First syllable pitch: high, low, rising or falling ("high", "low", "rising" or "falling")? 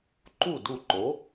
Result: falling